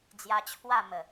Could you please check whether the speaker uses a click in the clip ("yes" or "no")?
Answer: no